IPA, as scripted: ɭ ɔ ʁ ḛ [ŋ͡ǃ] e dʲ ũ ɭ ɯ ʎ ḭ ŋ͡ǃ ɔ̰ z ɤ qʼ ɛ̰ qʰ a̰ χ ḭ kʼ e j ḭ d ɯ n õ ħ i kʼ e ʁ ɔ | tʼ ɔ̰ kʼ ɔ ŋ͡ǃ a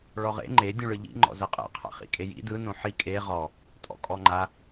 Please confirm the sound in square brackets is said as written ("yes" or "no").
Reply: yes